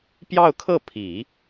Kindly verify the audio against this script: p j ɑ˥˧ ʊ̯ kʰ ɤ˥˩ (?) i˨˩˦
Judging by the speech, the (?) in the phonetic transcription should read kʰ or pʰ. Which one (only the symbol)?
pʰ